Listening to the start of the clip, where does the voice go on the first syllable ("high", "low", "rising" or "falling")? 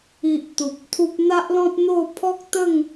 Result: low